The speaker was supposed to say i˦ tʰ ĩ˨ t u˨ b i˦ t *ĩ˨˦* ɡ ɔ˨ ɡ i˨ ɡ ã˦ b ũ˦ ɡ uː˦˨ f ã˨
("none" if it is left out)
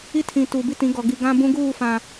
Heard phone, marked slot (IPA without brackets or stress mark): ĩ˨˦